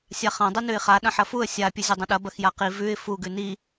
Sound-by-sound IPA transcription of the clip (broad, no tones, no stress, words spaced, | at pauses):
sʲaχɐ̃ dˤɨnʉɪ̯χa ɗɐ̃ħɐfuə̯ sʲa pʲɨzʲɐdˤɐ̃ɗɐ bɐxjaqi vʉɪ̯ fu ɡʉni